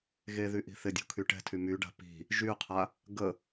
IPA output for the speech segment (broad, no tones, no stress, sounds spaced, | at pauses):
ɣ e ð y ʔ i̤ θ ɪ dʲ ṳ kʰ y ʈ ɛ̤ tʰ y m y ɖ a̤ p i̤ | ʒ y qʰ a | ɡ ə